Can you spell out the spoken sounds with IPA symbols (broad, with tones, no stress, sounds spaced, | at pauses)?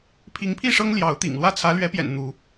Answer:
pʰ i˨˦ ŋ pʰ i˥˨ ʂ ɤ˦ ŋ l j ɑ˨˦ ʊ̯ t̪ ḭ˨˩ ŋ l w ä˥˨ t͡sʰ ä˨˦ l ɥ ɛ˨˦ p j ɛ̰˨˩ n n̪ u˨˦